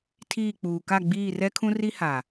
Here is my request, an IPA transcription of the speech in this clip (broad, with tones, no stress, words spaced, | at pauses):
tʰiː˦˨k͡puː˨ ka˦˨ɡ͡biː˦˨rɛ˦kʰũ˦ ri˦ha˨